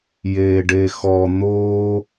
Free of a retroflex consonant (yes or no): no